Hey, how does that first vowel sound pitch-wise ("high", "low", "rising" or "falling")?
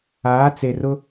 rising